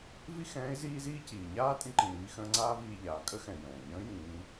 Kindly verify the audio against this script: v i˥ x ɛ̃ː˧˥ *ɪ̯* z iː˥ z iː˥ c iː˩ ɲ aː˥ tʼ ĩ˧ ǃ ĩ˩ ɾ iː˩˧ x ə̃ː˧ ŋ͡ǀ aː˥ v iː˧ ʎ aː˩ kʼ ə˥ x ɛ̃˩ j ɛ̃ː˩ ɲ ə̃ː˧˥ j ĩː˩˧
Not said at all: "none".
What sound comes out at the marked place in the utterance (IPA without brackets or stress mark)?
ɪ̯